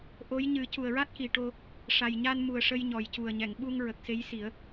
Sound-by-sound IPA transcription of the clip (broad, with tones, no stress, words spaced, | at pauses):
ʔo˧˥j ɲɨ˨˩˦cu˨˩ə̯ɹa˦˥t̚ki˨˩ ʈo˧ | ʂa˨˩jɲa˧nmu˨˩ə̯ ʂə˧jɲɔ˨˩jcu˨˩ə̯ɲɛ˨˩˨ŋ ɓu˧ŋ ɹə˨˩k̚se˧˥jsi˨˩˦ə̯